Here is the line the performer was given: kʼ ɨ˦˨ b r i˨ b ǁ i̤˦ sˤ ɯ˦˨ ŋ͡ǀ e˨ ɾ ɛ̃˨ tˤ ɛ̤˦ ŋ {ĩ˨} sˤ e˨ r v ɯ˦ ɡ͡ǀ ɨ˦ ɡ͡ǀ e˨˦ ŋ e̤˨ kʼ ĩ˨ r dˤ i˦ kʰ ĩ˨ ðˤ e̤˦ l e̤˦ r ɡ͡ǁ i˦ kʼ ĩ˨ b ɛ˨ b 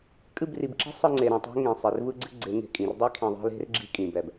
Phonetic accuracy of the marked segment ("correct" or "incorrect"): incorrect